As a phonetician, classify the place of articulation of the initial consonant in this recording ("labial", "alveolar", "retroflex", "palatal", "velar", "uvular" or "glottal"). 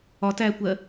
alveolar